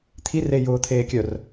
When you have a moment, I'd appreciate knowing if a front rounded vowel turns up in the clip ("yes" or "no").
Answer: yes